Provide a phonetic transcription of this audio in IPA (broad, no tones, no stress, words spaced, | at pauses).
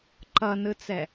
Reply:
ǃʌnɯt͡sɛ